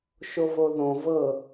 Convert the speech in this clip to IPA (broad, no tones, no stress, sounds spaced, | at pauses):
ʃ o v o ð õ v ɤ